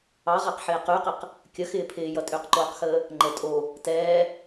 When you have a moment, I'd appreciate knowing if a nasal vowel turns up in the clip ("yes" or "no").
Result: no